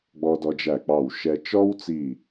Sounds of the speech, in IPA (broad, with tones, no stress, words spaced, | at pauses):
ɡ͡bɔ˧dɔ˧d͡ʒæ˧˩k͡pɑ˧˩w ʃɛ˧ t͡ʃɔ˥wt͡si˧˩